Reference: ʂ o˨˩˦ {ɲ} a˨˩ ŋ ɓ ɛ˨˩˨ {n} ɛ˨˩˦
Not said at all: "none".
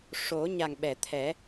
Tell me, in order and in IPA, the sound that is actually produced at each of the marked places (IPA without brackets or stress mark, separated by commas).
ɲ, t̪ʰ